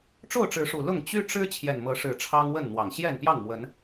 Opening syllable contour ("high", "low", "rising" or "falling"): falling